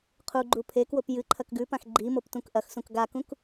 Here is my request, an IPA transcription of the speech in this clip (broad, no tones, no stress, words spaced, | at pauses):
qʰuɡ͡ǃu pʰekwop jɨ ǃʰɐkɡʉpãx ɡ͡ǃi moptũkʔɐxsũk ɡakũk